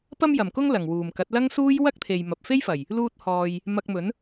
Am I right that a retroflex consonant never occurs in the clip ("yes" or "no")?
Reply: yes